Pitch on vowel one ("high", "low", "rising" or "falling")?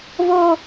high